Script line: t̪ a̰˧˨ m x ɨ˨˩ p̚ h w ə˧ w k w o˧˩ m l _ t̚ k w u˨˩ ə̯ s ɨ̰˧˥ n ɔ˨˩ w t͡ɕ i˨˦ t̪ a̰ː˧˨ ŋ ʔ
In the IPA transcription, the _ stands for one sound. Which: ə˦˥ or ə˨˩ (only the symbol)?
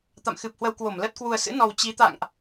ə˦˥